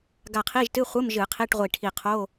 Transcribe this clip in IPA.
ɡ a˧˩ qʰ i˧˥˧ ʒ t ɨ˧˥˧ χʷ ɨ˧˥˧ m ʒ ɨ˧˩˧ qʰ i˧˥˧ ʈ ʁʷ i˧˩ ʈʰ i˧˩ qʰ o˧˥˧

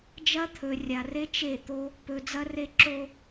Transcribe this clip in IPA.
d͡ʒ ɐ˦ t̪ʰ ɵ˨ rʲ a˨ r e˦ t͡ʃ e˦˨ t̪ o˦ | p ɵ˨ d͡z ɐ˦ r e˦ ǁ o˦

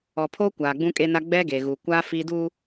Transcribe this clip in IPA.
ɔ˨ pʰ oː˦ kʷ aː˨ ɡ͡b ũ˦ kʼ e˦ n a˦ ɡ͡b ɛ˦ ɡ e˨ ɣ u˨ kʷ a˦ f i˦ d u˦

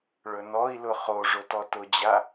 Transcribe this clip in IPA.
ɭ ɵ n ɔ i̯ l ʊ χ o ʐ ʊ t ɔ t ʊ d͡ʑ a

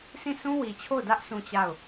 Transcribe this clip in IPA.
sʰ ĩ˦˨ sʰ ũ˦ w i˨ t͡ɕʰ o˦˨ ʊ̯ d ä˦ ʔ sʰ ũ˦˨ t͡ɕ a˦˨ ʊ̯

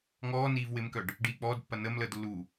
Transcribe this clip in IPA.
ŋ ɔː n iː v w ɪ m k œ ɖ | ɖ iː k͡p ɔː d pː ɐ n ə m l əː d lː u

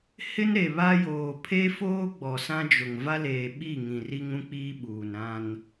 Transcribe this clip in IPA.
h ɪ˦ n ɾ e˨ β a˦ j oː˨ pʰ e˦ f oː˦ ɡ͡b ɔ˨ s ã˦ d͡ʒ ʊ˨ ŋ v a˦ l eː˨ ɓ i˦˨ ŋ ĩ˨ r i˦ ŋ ũ˦ k͡p iː˦ ɓ uː˨ n ɾ ã˦ n

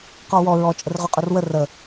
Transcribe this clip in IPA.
q ɔ w ɔ ɹ ɔ t͡ʃʼ ə r ʁ ø qʼ ø r w ə r ə

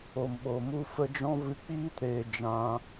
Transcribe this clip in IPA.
o˨ m ɓ o˨ m u˧ f ə˧ d͡ʒ ɔ̃˦ v ɨ˧ k͡p iː˦ t ɾ eː˧ d͡ʒ ã˧

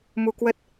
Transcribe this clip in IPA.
m u˧ k w ə˦˥ t̚

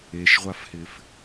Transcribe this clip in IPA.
e ʃ ʁʷ a f h ɪ f

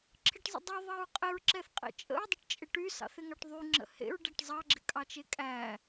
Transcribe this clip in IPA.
ǁʰ ɪ ʈ zˤ ə̰ dˤ y ðˤ ɑ ɹ qʼ ɪ ɹ ǁ ɛ θ qʼ ḛ t͡ʃʼ ə̰ ɹ dˤ ɪ ʈ t͡ʃʼ ɪ ʈ y s ɑ̰ θ ɪ ŋ ɑ ʈ ðˤ y ŋ͡ǁ ə̰ h ḛ ɹ ɖ æ ʈ zˤ ɑ ɡ͡ǁ ɪ kʼ ɑ t͡ʃ e kʼ æ

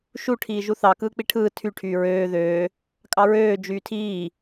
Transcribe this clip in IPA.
ʃ u ʈʰ iː ʒ u θ ɑ k ɯː k͡p i ʈʰ ɯː tʰ y ʈʰ yː ɹ øː ð øː | kʼ ɑ ɹ øː d͡ʒ yː tʰ iː

